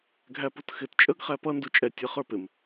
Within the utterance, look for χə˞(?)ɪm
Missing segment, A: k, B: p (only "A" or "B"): B